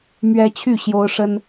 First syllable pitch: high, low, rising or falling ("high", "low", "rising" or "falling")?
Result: high